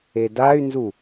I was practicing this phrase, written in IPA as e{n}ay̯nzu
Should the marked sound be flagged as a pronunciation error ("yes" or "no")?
yes